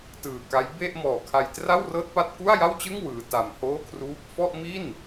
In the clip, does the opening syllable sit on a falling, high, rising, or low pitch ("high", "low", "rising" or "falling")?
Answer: low